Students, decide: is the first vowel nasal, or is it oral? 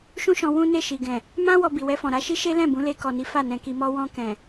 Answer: nasal